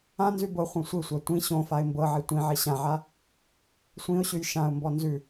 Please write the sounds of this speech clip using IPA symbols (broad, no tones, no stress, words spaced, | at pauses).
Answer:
ãnzʉ bɤχʷœ̃ sʷisʷa tʷĩ ɕõ faɪ̯mbɤʕi tʷĩʕi ɕãʕa | sʷĩʊ̯ɕʉj ʃãʊ̯mbɔ nzʉ